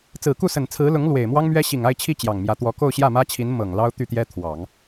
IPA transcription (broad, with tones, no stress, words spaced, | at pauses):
t͡sɹ̩˨˩ku˥˩sə˨˩nt͡sʰɹ̩˧˥ lʊ˧˥ŋ lwe˨˩ɪ̯ mwɑ˥ŋmɥɛ˥ ɕi˨˩ŋa˥˧ɪ̯t͡ɕʰi˥˩ t͡ɕjɑ˨˩ŋmjä˧˥ t̪wɔ˧˥ ko˥˧ʊ̯ɕjä˥˩mä˥t͡ɕʰi˧˥n mɤ˨˩ŋlɑ˥ʊ̯t̪y˥˩t̪jɛ˥ t̪ʰwɑ˨˩˦ŋ